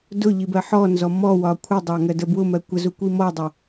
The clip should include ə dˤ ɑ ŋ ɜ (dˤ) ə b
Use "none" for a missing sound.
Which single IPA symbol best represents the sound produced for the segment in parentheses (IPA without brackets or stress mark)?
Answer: d